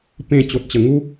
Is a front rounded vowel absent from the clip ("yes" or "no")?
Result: yes